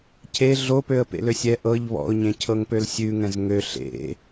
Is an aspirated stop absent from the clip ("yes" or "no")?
no